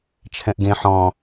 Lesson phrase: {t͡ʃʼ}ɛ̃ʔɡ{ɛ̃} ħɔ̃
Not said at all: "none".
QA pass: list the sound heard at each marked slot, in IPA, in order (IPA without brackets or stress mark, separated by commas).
t͡ʃʰ, ẽ